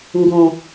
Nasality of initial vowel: nasal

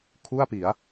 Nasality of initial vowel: oral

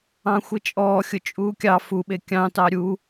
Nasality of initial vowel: nasal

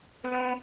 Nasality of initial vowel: nasal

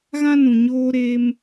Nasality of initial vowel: nasal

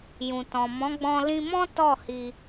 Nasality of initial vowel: nasal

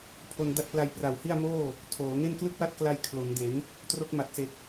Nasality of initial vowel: oral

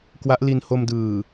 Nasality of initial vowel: oral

